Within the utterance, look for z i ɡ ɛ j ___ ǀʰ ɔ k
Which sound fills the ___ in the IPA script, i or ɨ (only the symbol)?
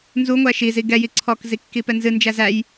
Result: i